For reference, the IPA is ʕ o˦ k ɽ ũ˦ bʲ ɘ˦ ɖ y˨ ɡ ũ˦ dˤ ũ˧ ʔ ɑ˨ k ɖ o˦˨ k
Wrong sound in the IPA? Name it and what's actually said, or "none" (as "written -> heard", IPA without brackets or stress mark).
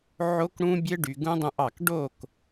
none